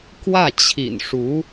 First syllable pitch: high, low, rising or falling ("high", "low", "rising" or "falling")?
falling